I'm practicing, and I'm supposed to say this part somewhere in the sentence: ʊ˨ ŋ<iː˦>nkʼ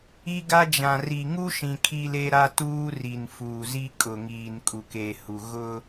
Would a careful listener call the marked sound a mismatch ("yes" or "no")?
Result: yes